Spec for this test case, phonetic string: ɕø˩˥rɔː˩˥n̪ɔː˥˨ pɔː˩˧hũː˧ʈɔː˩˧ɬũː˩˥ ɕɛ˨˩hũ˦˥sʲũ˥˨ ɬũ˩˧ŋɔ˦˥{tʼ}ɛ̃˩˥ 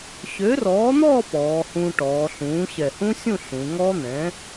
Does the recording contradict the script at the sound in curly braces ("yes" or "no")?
yes